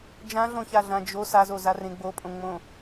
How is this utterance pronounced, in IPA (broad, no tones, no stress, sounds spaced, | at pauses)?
d͡ʒ ã ɮ õ ç a ɮ ã d͡ʒ o s a z o z a r ẽ ɡ͡b o pʼ õ ŋ͡m õ